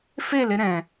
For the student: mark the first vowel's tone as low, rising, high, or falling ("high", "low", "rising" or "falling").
falling